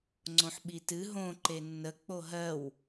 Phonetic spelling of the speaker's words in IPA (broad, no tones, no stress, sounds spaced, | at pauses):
ŋ͡ǀ õ ħ ɓ i t ɨ ɦ õ ǃ e nː ə k͡p o ɦ ɜ w